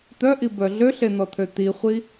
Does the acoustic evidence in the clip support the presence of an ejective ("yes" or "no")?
no